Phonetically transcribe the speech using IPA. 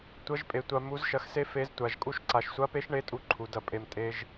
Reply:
tʷɐ˧˥ʒpʼe˩˧tʷa˧ mu˧˥zʃɐ˧x se˥fe˧˥ztʷa˩˧ʒ kʼu˧˥ʃǀa˩˧ʃsʷa˧˥pe˧˥ʃ ɳe˧˥tʼu˧ǃʰu˩˧ dɐ˧pʼe˧m tʼe˧ʒ

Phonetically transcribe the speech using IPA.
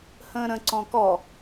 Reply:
hə̃ːɾə̃ ǀɔ̃kɔ

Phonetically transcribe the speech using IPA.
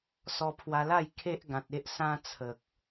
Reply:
sɔ˧pʰwa˧la˥˧j kʰe˦ʔɡã˨t̚e˦ʔ sã˧t͡sʰə˨k̚

